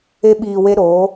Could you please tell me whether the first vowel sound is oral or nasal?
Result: oral